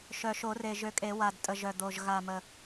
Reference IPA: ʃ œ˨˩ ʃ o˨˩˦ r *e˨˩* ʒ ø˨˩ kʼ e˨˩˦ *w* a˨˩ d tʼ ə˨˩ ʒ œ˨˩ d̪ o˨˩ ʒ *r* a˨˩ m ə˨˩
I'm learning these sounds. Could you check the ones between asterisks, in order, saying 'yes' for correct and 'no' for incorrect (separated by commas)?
yes, yes, no